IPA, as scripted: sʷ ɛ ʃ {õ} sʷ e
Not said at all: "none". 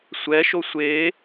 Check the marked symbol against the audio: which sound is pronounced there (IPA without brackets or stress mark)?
o